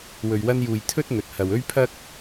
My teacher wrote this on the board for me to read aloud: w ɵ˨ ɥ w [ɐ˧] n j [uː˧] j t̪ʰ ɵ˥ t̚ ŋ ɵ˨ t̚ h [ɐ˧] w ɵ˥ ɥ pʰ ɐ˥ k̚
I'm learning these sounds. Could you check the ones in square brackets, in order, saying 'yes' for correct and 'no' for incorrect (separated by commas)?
yes, no, no